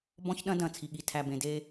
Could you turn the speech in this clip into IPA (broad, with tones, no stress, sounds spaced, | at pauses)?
b ɔ̃˦ ç ɗ ɐ̃˦ d ɐ̃˨ t͡sʰ i˨ ɠ i˨ tʰ æ˨ b ẽ˨ d e˦